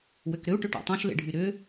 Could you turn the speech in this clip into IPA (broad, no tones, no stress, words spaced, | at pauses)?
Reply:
wʏkɾʏu̯ ʈʏʈɔ̰tˤõʃ lḛɖʱyɾʏ